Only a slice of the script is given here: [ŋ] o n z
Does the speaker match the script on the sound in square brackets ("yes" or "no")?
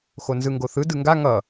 no